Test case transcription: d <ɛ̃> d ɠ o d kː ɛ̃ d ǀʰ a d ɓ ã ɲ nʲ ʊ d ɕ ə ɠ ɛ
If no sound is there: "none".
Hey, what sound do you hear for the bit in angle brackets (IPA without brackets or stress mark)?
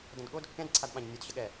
ə̃